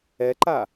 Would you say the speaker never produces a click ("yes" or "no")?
no